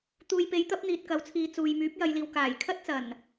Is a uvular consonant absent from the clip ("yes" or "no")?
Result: yes